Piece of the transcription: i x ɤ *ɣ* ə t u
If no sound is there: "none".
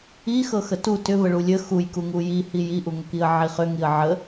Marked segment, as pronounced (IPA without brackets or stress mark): x